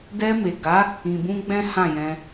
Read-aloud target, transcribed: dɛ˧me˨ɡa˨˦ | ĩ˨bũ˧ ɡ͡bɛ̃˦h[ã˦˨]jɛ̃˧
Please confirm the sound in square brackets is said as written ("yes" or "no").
yes